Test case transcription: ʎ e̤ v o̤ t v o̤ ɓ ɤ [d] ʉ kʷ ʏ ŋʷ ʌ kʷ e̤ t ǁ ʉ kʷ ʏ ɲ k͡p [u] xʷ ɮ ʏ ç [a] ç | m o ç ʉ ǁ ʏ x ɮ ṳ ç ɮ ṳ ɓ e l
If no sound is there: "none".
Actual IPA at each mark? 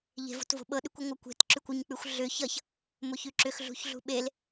ɗ, ʉ, ʌ

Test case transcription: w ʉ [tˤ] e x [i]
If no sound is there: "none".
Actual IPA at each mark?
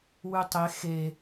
tˤ, e

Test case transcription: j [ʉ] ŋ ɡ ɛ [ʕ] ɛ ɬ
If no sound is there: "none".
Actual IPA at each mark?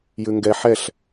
ʉ, ħ

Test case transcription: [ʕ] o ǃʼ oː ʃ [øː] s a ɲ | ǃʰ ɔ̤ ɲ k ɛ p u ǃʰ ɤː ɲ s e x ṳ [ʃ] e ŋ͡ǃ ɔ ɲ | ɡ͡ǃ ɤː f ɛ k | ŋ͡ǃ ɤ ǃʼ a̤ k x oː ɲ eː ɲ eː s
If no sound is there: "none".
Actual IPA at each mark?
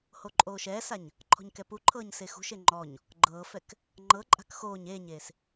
h, ɛː, ʃ

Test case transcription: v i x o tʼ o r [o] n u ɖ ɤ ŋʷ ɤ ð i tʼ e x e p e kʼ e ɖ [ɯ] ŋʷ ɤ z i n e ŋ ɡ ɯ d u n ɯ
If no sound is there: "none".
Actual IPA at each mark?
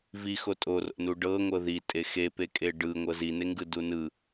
o̰, ɯ

